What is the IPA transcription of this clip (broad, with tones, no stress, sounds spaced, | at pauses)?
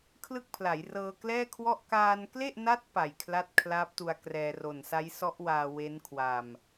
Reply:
kʰ l ɯ˥˩ k̚ pʰ l a˩˦ j r ɤː˧ k l ɛː˥˩ kʰ w ɔ˥˩ ʔ k aː˧ n k l e˥˩ ʔ n a˦˥ t̚ p a˨˩ j kʰ l a˥˩ t̚ kʰ l aː˦˥ p̚ t u˧ a̯ k r ɛː˧ r o˨˩ n s a˦˥ j s ɔ˦˥ ʔ w aː˧ w e˦˥ n kʰ w a˧ m